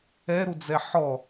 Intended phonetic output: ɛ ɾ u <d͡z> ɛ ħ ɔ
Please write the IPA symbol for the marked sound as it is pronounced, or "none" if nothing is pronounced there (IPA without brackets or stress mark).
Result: d͡z